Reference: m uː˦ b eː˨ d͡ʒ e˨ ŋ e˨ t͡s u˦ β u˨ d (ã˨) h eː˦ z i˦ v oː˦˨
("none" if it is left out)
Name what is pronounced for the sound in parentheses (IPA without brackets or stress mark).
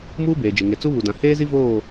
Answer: ã˨